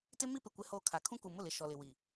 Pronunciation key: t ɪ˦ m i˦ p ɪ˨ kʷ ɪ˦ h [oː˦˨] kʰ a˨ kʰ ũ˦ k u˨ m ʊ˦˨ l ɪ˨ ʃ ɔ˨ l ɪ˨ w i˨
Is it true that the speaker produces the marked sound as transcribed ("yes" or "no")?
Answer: yes